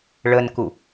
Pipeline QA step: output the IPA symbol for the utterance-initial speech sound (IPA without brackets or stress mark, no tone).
ɭ